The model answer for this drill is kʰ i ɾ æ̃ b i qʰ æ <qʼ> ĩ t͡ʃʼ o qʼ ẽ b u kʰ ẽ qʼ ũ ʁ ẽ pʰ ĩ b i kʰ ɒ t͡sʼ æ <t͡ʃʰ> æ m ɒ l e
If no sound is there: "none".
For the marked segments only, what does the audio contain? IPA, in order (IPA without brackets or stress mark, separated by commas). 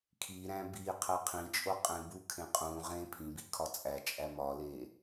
qʰ, t͡ʃʼ